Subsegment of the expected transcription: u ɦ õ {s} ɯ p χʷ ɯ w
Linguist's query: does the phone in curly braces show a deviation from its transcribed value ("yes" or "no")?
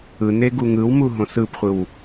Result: no